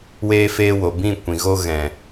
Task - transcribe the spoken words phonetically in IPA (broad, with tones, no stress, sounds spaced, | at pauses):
w eː˧ f eː˧ w o˨ b ĩ˦˨ kʷ ĩ˨ ɣ o˧ ɣ ɛ̃˨